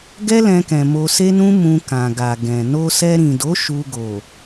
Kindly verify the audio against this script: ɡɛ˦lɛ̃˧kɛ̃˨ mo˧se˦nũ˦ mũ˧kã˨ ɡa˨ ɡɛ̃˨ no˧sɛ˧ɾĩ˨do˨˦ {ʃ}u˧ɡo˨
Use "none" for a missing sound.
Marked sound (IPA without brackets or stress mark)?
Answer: ʃ